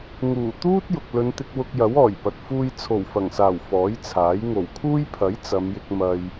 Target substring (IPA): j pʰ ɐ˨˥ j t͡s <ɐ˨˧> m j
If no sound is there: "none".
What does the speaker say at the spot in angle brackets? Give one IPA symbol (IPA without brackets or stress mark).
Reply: ɐ˨˧